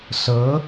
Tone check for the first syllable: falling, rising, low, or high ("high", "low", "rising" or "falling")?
rising